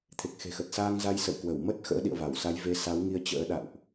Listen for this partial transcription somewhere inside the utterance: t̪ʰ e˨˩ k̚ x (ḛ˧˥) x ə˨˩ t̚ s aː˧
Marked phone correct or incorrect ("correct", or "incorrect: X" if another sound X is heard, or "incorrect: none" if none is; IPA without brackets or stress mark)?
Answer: incorrect: e̤˨˩